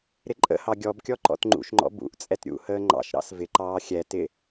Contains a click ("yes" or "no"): yes